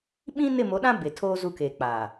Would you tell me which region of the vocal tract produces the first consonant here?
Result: lips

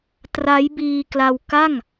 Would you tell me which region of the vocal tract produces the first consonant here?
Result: tongue tip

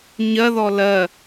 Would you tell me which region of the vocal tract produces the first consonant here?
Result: palate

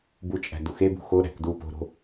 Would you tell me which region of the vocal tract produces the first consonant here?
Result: lips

